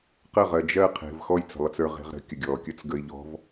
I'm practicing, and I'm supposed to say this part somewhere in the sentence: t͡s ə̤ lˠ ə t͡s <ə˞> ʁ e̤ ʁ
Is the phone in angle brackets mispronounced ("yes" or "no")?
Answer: no